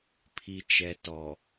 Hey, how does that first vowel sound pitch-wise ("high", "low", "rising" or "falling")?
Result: low